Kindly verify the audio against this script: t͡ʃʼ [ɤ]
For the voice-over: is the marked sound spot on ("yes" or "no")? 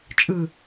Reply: no